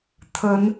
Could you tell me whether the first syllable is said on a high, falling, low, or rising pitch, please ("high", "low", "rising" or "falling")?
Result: rising